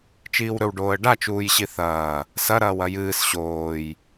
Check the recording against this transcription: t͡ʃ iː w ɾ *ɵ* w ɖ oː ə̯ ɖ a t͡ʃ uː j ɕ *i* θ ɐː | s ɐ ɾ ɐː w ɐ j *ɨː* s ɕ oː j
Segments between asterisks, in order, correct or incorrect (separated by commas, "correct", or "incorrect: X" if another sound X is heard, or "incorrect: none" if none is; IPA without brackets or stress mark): correct, correct, correct